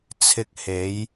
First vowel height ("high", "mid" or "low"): high